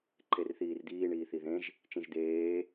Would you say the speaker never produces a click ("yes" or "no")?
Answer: no